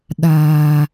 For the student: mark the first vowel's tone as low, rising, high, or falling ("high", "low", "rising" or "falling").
low